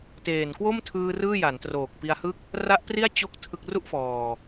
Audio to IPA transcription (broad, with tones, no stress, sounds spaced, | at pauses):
t eː˨˩ n k w o˥˩ m tʰ ɯː˧ r ɯː˥˩ j a˩˦ n t r oː˨˩ k̚ p i˧ a̯ h ɯ˥˩ k̚ | r a˦˥ ʔ p r i˥˩ a̯ t͡ɕ o˥˩ k̚ tʰ ɯ˥˩ k̚ r u˥˩ ʔ f ɔː˨˩